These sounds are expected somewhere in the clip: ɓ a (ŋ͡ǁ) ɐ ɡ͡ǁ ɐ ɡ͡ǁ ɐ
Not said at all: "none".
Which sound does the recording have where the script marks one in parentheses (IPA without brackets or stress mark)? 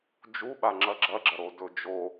ŋ͡ǁ